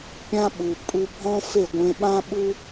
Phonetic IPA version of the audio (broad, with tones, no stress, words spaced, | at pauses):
pʲã˧ ɓu˨ pʼu˧bʱɔ̃˦fe˦˨ ɡʷẽ˧ɓã˦ ɓu˦